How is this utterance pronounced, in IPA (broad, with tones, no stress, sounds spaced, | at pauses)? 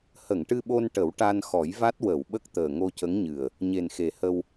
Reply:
h ə˨˩˨ ŋ ʈ ɨ˧ ɓ o˧ n ʈ ə˨˩˦ w ʈ a˧ n x ɔ˨˩˦ j v a˦˥ t̚ w ə˨˩˨ w ɓ ə˦˥ k̚ t̪ əː˨˩ ŋ o˧ c ə˧˥ ŋ ɲ ɨ˨˩ ə̯ | ɲ e˨˩ n x e˨˩ h ə˧ w